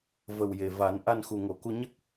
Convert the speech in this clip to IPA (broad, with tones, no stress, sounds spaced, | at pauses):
v ə˨˩ w j e˨˩ v a˨˩˦ n ʔ a˧ n x u˨˩ ŋ o˨˩˨ k u˧ ɲ ə˦˥ k̚